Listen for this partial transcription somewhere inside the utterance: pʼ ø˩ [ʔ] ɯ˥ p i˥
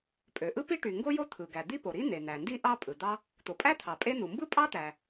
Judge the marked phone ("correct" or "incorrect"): correct